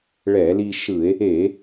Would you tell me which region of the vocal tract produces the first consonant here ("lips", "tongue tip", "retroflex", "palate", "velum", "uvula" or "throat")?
retroflex